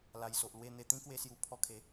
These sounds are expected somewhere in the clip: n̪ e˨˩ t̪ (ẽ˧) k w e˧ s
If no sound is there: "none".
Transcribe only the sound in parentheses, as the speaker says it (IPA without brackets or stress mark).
ĩ˧